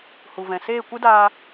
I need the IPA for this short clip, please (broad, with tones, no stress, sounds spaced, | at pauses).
h u˨ v ɛ̃˨ s eː˦˨ kʷ ɨ˦ d aː˧